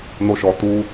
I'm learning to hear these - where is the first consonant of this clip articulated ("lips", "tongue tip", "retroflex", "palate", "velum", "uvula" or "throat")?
tongue tip